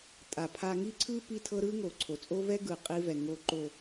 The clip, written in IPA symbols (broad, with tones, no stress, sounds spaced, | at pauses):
tʼ a˨ pʰ a˧ ŋ i˦ ǀʰ ɯ˦ p i˦ tʰ ɤ˦ ɾ ɯ˦ ŋ o˨ ǀʰ o˨ t͡sʼ o˦ v ɛ˦ ɡ ɯ˨ qʼ i˧ v ɛ˨ ŋ o˨ ǃ o˨